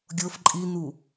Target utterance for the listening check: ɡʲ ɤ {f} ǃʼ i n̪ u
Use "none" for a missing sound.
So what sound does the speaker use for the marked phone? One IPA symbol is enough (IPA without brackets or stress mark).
f